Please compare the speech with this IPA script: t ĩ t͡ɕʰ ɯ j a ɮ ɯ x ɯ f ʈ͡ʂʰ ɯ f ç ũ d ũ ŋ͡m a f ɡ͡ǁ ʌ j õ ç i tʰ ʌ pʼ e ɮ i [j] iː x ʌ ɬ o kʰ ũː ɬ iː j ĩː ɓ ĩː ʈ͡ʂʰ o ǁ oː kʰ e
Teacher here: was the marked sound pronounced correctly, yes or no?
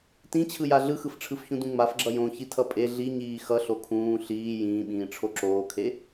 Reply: no